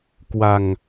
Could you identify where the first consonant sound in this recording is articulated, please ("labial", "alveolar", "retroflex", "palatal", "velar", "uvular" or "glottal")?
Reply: velar